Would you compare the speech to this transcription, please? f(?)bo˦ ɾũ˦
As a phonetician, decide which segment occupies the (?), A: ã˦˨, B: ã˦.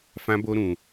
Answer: B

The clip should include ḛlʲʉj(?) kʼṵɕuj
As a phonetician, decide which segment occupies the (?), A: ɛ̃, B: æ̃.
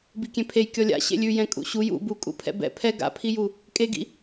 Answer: A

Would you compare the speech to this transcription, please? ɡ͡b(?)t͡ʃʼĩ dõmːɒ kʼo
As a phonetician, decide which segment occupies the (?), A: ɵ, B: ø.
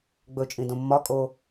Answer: A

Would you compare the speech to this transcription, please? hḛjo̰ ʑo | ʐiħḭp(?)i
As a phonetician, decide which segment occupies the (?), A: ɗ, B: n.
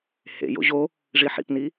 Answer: B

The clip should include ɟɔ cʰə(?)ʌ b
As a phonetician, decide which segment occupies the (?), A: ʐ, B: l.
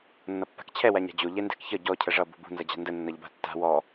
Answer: A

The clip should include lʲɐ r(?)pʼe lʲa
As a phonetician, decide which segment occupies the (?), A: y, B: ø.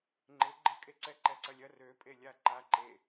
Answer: B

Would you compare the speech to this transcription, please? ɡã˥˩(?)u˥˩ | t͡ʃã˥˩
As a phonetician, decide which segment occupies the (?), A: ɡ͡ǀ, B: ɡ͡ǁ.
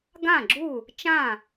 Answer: B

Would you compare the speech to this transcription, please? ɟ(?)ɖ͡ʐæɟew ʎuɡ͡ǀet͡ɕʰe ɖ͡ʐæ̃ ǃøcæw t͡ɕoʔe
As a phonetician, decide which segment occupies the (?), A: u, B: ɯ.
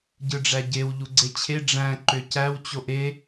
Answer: B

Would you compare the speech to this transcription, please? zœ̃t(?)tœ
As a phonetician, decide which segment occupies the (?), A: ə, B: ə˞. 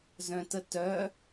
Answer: A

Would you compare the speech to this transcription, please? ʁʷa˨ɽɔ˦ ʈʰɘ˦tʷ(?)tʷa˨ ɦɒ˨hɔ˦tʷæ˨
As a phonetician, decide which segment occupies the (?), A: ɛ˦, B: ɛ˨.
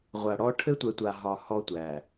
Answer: B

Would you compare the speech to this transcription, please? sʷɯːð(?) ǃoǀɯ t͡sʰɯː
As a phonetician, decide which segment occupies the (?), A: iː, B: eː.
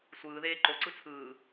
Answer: B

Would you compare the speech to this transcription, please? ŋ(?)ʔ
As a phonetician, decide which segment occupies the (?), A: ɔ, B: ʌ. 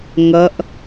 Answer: B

